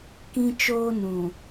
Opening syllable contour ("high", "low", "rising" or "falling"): high